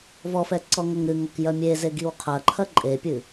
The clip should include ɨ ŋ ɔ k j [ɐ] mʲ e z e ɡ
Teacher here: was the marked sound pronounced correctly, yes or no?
yes